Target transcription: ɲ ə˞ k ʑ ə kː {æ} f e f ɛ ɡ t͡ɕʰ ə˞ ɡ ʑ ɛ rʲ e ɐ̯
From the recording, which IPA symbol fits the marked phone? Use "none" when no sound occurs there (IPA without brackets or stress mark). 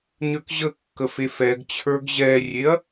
ə